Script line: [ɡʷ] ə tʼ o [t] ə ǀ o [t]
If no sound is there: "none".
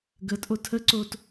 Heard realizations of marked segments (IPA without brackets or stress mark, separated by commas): ɡ, tʰ, t